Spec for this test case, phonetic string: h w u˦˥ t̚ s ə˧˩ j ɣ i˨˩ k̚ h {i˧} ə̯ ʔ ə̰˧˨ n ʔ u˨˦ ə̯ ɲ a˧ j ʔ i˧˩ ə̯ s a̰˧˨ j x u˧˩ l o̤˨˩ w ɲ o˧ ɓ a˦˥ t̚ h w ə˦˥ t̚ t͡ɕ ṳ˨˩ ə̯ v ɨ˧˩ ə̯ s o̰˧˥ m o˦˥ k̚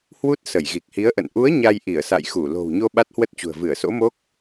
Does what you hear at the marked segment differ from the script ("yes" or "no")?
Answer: yes